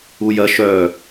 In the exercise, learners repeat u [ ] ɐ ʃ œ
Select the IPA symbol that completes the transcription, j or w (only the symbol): j